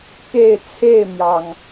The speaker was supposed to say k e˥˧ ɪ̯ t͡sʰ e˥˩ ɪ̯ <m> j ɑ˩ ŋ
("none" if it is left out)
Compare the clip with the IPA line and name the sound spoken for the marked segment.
m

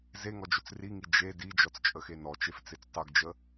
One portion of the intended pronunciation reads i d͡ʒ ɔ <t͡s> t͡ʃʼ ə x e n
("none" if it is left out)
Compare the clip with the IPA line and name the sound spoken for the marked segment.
t͡s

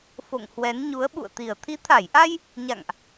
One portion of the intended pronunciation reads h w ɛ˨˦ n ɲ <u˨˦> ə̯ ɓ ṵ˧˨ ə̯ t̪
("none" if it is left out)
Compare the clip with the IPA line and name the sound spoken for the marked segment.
u˨˦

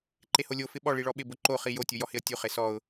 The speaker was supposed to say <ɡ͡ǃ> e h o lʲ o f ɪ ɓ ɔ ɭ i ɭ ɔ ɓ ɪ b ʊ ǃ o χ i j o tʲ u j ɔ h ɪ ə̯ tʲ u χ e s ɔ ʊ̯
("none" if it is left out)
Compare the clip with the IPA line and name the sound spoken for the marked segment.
ǃ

